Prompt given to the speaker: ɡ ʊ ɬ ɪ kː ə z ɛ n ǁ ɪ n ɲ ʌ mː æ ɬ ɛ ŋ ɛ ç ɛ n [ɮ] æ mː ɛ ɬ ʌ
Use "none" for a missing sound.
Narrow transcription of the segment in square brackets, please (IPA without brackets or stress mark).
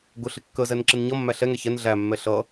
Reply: ɮ